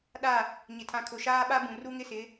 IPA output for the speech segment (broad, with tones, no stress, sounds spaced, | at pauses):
ɗ a˦˨ | ɲ ɪ˨ tʰ ã˨ kʰ ʊ˨ ʃ aː˦ ɓ a˦ b ũ˨ r u˦ ŋ ɪ˦ s ɪ˨˦